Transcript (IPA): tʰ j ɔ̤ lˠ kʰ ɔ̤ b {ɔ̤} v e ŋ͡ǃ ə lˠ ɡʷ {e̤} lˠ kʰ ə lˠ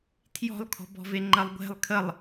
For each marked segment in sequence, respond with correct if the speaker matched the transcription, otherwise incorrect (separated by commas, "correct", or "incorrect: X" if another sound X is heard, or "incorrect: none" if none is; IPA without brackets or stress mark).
correct, correct